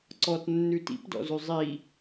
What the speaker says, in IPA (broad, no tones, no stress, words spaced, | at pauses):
ǀɔtnːʉ tḭpdɔ̰zʉ zˤi